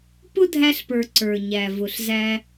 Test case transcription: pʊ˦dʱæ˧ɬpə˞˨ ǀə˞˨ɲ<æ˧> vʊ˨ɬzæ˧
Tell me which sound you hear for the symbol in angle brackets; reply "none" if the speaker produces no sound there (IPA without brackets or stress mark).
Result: æ˨